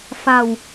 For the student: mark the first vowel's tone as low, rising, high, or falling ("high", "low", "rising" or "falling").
low